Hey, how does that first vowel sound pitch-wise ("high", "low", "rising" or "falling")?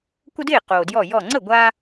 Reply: high